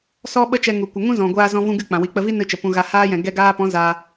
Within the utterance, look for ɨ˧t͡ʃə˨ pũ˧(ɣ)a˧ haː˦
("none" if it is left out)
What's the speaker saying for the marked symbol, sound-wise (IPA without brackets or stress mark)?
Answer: ɣ